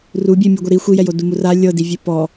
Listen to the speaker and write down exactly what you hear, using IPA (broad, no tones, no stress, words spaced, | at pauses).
rubʲe mʲuɡʷɛɾi xʷijɛjo dumura lʲɤdivʲe pɔ